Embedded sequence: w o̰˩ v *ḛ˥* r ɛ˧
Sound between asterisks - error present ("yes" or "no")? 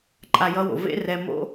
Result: no